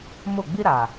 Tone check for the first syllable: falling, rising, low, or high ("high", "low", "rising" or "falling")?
falling